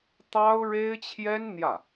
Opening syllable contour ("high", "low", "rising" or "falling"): high